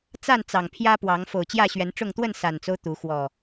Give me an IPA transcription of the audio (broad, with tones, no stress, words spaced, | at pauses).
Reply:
t͡sa˥˨nt͡sɑ˨˩ŋ pʰjä˦pwɑ˨˦ŋ fo˨˩ʊ̯t͡ɕjä˥˨ɕɥɛ˨˦nʈ͡ʂʊ˥˨ŋ t̪wə˥˨nsa˨˩nt͡so˦ʊ̯ t̪u˨˦ xwɔ˨˩